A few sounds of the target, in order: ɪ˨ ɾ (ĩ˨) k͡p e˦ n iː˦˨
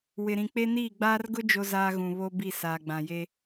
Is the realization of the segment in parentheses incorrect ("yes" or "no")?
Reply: no